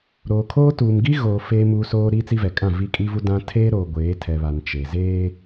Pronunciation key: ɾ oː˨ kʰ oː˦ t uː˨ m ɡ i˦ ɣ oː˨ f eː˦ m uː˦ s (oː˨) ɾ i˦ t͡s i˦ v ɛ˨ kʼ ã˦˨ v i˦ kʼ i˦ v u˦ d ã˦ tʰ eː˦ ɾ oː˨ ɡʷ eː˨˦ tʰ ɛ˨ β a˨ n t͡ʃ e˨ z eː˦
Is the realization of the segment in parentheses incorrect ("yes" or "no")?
yes